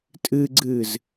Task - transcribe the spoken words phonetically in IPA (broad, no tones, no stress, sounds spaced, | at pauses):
tʼ ɨ ɡ͡ǀ ɨː z